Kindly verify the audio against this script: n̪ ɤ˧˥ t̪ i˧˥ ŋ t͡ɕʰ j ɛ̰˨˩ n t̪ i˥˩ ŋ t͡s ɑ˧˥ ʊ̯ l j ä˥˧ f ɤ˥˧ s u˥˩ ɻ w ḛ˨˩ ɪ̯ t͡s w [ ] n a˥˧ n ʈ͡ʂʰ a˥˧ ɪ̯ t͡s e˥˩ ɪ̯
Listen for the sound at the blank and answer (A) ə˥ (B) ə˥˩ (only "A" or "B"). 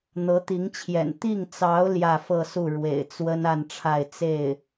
A